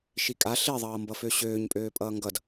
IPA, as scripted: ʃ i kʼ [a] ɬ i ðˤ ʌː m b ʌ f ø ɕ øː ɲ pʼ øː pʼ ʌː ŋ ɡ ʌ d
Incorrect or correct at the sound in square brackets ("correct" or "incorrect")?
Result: correct